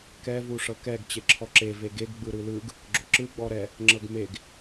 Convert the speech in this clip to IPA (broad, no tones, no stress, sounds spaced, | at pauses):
k ɛ v u ʂ ɤ k ɛ ɡ t͡ɕ e ǁʰ ɔ ǁ e v e ɡ e ɡ ɡ͡b ɯ ɾ ɯ l ɯ ɡ | ɡ͡ǁ o ǁ ɯ ɡ͡b ɔ ɾ ɛ | ŋ͡ǁ ɤ ɡ m e ɡ